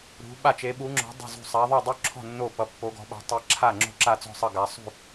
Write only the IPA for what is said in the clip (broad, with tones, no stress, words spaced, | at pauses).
ɾṳ˧˥ ɓa˥˨t͡ʃe˧˥ɓu˧˥ŋ͡ǁɔ̤˧˥ dˤṳ˥˨zṳ˥˨ sˤa˧˥ ðˤu˥˨ dˤu˥˨ǁʰɔ̤˥˨ nːo˥˨ pʌ˧˥pːo˧˥ɡɔ̤˧˥ɓa̤˧˥ tˤe˧˥ǁʰa˥˨ŋ͡ǁo̤˥˨ ǁa˥˨t͡sɔ̤˥˨sˤʌ˥˨ ɡa˧˥ sˤṳ˥˨